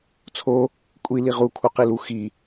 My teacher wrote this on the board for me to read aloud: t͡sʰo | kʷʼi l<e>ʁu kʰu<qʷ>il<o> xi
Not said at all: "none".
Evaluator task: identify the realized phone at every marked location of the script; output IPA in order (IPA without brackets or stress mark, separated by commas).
i, q, u